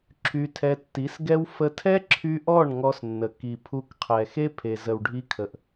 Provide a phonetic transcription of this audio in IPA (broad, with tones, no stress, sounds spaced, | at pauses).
ǁʰ y˧ tʰ ɛ˧ tː i˨˦ s ɡ ɛ˦ w f ə˧ tʰ ɛ˦ ǁʰ y˧ ʔ ɔ˦˨ ɳ ŋ ɔ˧ s nː ə˨ k i˨ pʰ u˧ k qʰ ɛ˨ x e˦ pʰ e˨ z ə˨ w ɖʱ i˧ kʰ ə˨ ʔ